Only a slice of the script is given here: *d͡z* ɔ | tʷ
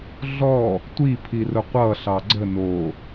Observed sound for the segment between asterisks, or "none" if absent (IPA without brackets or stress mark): ɮ